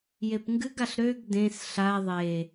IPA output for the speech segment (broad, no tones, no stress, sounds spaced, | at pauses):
j e p ŋ ɡ ɨ ɡ a ɬ ɾ ø ɡ d ẽ s ɬ a ðˤ e